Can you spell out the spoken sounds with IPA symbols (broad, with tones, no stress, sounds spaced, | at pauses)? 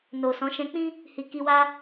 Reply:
n o˨ s ɔ̃˨˦ ʃ ɛ̃˧ k͡p ĩ˦ | h i˨ k i˧ w a˦